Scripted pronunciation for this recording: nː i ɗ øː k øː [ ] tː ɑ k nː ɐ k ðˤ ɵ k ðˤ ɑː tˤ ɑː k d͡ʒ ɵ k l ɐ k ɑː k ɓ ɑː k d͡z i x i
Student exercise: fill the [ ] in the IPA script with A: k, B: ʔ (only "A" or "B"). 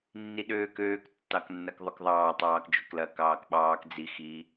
A